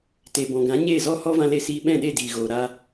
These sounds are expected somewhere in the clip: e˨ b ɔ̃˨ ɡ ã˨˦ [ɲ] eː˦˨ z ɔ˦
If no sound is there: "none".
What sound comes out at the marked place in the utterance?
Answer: ɲ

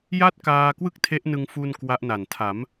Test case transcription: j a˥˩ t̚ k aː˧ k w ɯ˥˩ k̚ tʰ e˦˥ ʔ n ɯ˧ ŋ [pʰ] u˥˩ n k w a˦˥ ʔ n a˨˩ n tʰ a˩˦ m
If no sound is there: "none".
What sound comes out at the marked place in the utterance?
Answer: f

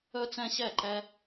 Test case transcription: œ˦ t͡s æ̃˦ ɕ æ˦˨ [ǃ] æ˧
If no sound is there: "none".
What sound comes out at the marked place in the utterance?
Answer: ǃ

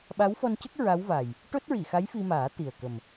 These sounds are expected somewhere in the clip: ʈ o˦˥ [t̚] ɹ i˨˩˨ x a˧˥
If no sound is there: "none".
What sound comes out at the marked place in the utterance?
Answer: t̚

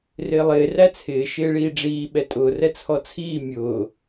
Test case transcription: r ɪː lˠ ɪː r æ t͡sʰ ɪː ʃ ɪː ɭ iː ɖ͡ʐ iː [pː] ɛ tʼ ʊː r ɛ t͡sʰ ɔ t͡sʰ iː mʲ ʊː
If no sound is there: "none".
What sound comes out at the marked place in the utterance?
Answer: ɓ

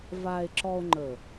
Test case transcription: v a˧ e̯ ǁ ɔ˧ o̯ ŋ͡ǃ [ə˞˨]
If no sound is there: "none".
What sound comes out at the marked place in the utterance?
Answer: ə˨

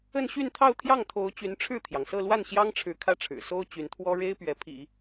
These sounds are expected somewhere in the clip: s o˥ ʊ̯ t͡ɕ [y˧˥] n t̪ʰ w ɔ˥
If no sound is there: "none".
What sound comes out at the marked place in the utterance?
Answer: y˧˥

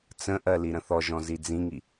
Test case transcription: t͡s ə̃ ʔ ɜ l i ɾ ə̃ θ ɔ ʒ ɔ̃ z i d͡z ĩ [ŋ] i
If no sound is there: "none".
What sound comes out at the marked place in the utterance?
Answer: ŋ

